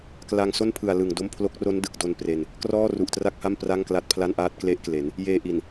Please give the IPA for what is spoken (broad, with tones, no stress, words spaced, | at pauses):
kla˧ŋso˥˩npʰɯ˨˩a̯ lɯ˨˩ŋdo˥˩m pʰlo˦˥k̚ro˦˥ndɯ˨˩k̚do˧n pre˧n | krɔː˥˩ru˨˩ʔtra˥˩k̚ha˥˩m pra˥˩ŋkla˦˥t̚pʰla˥˩nʔaː˥˩t̚ kle˦˥ʔkle˩˦n | jeː˧ʔi˨˩n